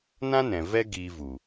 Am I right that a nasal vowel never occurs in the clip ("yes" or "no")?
no